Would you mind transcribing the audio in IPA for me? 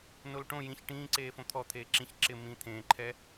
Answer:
n o l ʈ õ j ĩ ç ʈ ĩː ǀ eː f õ t̪ʰ ɔ t̪ʰ eː ǁ ĩ ç ǁ ɪ m ĩ t̪ʰ ẽː ǃʰ ɛ

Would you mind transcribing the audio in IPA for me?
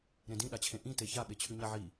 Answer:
ɾ ẽ d ĩ ɗ a t͡ɕʰ ẽ ʔ ĩ t e ç a ɓ e t͡ɕʰ ʉ ɲ a ʕ i

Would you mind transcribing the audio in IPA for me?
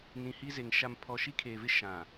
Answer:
n ĩ˨ h i˦ z e˨ ŋ ʃ a˨ m pʰ ɔ˨ ʃ i˦ kʰ eː˨ v ɪ˦ ʃ ã˨

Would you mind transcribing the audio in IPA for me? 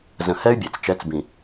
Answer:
z ə̃˨ h ɛ˦ y̯ bʲ ɛ˨ t͡s t͡ʃ ɛ˨˦ t͡s b ĩ˨

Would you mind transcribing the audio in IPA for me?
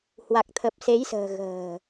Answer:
h w a˨˩ k̚ t̪ʰ ə˨˩ p̚ s e˨˦ j s ə̤ː˨˩ ɣ ə̤ː˨˩

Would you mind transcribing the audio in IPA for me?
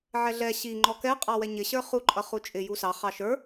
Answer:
ʕ ɛ ɮ ɛ ɕ i ŋ͡ǃ ɔ k ɛ qʼ ɑ w ɛ ɲ ɪ ɕ ə˞ χ u ǃʼ ʌ χ u t͡ʃʼ ɪ j u s ɑ χ ɑ ʃ ə˞

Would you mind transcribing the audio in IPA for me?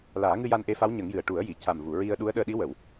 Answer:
l aː˨˩˦ ŋ ɨ˧ j a˧ n ʔ e˧˥ f a˧˥ w ɲ ə˨˩˦ ŋ j ɨ˨˩ ə̯ ʈ u˨˩˦ ə̯ j i˨˩˨ c a˨˩ m v u˨˩˨ ɹ i˧ ə̯ ɗ u˧˥ ə̯ ɗ əː˧ ɗ i˧˥ w ə˨˩˨ w

